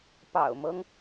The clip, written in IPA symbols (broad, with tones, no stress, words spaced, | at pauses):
pɑ̰˨˩ʊ̯mɤ˦ŋ